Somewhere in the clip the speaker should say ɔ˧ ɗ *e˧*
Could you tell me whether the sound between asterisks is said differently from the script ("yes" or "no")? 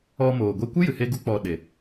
yes